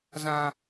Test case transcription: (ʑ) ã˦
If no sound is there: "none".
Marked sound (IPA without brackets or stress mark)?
z